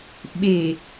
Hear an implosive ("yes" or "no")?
yes